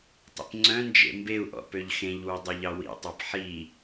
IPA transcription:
tˤḭpŋ͡ǀœ̃nd͡ʒḛ mbeu̯ʔɔ̰ pøʎxẽʎwy dˤøʎɑwḭtˤɑp ħi

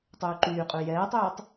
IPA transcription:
tˤyːǃyːqʼʉ jɛːtˤyːtˤ

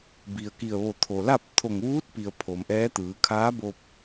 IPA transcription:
bi˩ə̯ki˧˩ə̯ ʋo˧˩t̪ʰo˩la˥˨p̚ t̪ʰo˧˩ŋʋuː˧˥t̚pi˩ə̯ pʰo˩mʔɛː˧˥t̪ɯː˩˧ kʰaː˧˥bo˧p̚

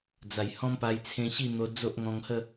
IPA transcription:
d͡za˨˩jhɔ̃˦mpa˧j t͡sʰẽ˧ɕi˥˧n̪o˧ d͡zo˦ʔŋɔ̃˧ŋhə˥˧

